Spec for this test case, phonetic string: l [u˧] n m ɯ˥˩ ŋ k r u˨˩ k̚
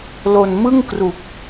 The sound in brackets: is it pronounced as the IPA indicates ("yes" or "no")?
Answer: no